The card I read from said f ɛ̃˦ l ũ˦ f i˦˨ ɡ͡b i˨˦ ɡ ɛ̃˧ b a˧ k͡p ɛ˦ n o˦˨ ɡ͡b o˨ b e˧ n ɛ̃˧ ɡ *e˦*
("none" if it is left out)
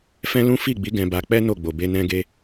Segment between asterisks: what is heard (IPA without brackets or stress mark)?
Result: e˧